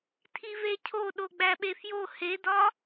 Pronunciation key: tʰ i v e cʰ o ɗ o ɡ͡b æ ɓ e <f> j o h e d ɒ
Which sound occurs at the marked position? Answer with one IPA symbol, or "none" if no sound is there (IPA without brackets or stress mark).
f